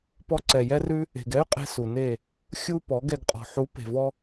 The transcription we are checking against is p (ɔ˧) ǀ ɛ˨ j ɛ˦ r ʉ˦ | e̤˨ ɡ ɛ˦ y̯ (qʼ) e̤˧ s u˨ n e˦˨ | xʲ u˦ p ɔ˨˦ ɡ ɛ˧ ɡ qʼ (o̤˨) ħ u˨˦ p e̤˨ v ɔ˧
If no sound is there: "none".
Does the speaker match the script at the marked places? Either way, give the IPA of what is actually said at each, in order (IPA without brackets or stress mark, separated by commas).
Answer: ɔ˧, qʼ, ɔ̤˨